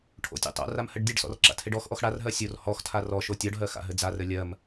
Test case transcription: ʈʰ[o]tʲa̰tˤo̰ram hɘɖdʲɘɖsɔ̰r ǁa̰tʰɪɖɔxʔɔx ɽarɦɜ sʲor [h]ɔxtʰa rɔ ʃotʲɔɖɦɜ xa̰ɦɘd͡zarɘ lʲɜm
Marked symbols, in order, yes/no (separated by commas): no, yes